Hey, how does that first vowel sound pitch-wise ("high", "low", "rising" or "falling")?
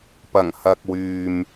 low